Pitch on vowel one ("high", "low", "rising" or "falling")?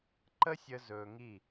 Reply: high